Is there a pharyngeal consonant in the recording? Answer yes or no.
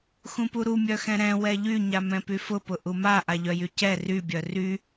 no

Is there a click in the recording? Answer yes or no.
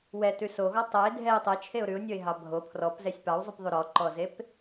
yes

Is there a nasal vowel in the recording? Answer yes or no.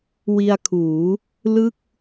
no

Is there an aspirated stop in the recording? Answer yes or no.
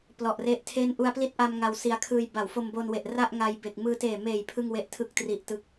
yes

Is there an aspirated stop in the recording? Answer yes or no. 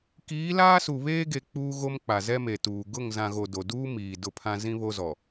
yes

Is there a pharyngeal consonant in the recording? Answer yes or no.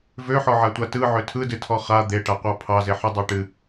yes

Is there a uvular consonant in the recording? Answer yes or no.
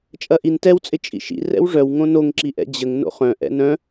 yes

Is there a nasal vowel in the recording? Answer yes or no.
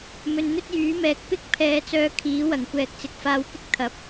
no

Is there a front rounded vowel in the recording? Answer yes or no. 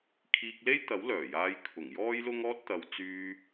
yes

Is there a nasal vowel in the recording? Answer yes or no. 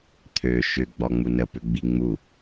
no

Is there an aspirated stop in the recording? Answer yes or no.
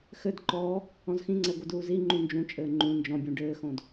no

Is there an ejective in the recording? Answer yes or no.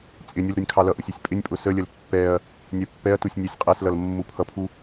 yes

